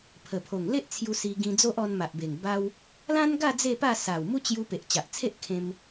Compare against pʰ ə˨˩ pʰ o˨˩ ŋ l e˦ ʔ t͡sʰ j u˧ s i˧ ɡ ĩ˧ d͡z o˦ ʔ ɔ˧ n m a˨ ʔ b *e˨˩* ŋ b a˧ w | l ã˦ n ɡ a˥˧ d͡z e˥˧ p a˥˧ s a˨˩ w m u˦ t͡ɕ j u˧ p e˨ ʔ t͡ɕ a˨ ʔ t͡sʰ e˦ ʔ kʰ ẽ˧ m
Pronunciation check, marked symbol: correct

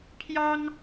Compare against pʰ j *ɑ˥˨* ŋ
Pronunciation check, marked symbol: incorrect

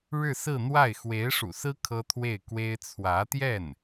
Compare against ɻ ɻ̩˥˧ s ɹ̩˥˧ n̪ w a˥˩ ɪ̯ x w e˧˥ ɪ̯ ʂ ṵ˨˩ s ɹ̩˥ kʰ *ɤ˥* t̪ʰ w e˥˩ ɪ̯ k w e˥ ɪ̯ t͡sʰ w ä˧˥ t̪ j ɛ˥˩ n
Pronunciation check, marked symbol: correct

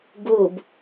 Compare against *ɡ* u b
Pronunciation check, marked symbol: correct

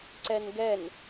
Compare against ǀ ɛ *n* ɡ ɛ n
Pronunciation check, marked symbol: correct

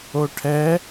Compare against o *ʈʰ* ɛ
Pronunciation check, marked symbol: correct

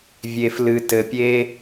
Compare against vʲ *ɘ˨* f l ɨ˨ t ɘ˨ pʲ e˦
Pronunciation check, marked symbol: incorrect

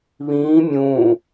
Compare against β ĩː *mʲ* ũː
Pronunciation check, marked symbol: correct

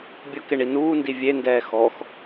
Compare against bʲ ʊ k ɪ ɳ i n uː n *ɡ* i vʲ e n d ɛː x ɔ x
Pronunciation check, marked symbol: incorrect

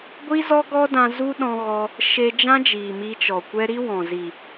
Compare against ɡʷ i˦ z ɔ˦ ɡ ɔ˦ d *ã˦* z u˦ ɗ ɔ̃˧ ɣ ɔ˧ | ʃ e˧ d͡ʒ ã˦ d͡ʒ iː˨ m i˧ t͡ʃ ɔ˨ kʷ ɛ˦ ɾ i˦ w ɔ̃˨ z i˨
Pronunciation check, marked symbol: incorrect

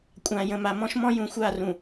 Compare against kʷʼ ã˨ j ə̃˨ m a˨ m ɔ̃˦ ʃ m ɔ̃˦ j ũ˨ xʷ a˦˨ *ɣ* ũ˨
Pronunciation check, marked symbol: incorrect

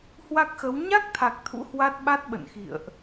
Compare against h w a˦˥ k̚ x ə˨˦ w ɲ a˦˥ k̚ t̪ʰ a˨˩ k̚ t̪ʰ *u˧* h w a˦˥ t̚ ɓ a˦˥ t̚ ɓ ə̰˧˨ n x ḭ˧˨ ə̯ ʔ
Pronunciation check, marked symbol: incorrect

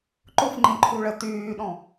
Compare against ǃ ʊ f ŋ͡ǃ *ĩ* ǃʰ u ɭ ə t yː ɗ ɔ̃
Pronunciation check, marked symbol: correct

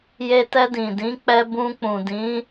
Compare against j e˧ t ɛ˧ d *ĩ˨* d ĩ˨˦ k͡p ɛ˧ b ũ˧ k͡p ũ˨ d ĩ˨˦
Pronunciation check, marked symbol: correct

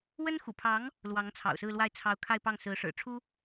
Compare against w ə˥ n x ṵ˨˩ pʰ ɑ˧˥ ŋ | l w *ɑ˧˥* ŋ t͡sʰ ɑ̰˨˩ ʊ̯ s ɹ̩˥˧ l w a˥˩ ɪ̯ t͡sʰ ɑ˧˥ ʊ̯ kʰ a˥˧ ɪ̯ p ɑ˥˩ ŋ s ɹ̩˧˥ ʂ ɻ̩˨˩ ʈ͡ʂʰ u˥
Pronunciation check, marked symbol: correct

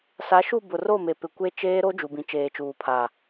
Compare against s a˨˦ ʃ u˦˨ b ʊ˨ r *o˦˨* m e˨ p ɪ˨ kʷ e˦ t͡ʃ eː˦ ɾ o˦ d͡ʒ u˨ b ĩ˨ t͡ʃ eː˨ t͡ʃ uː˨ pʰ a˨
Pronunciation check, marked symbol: correct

